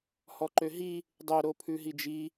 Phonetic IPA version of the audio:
h ɔ ǃ ø ɦ i | dˤ œ ɾ o pʰ ʉ ɦ i d͡ʒ i

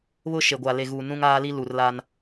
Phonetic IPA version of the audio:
β ʊ˦ ʃ e˨ ɡʷ aː˨ l e˨ ɣ uː˨ n ũ˦ ŋ aː˦ l i˦ l u˨ r l a˦ n

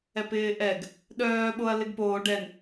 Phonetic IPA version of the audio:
ɛ p ɪː ʔ ɛ ɡ | ɗ œː ɓ o ɐ̯ l ɪ ɡ p oː ɖ ɛ n

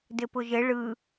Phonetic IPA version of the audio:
d ɘ p ʊ ʒ ɘ ɭ ɯ

